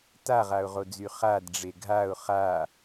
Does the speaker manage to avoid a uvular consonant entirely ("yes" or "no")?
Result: no